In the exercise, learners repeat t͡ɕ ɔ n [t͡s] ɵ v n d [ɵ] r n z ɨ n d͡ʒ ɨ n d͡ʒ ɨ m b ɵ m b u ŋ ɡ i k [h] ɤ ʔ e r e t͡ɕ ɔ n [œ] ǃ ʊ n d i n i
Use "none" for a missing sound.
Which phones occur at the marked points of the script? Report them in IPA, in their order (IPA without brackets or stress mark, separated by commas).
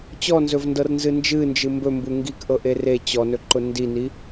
z, ɤ, ʔ, ɵ